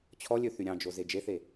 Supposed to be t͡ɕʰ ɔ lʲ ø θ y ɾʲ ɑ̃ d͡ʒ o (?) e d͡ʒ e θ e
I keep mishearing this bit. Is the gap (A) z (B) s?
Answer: A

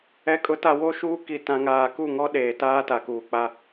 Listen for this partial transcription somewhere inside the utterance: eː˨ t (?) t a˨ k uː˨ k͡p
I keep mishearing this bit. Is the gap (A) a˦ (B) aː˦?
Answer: B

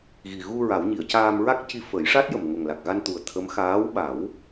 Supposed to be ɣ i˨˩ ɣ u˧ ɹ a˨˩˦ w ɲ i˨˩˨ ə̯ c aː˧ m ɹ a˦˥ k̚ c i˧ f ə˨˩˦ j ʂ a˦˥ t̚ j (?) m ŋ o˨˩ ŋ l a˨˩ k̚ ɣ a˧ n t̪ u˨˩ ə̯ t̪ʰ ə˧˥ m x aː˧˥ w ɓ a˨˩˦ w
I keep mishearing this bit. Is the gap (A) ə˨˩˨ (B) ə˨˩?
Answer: B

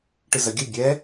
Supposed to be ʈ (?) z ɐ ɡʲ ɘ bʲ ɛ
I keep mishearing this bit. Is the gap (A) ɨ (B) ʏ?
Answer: A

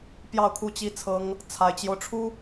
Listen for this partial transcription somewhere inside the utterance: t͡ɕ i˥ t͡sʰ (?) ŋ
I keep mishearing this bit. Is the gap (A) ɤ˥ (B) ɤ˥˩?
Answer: A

